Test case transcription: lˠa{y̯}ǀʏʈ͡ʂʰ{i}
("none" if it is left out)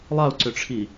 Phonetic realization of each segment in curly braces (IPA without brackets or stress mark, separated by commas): u̯, i